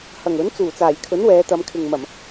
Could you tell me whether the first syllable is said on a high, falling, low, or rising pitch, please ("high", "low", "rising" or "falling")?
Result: low